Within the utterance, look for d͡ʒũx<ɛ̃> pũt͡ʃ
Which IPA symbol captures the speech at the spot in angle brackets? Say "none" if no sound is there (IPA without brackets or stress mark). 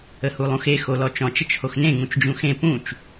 ẽ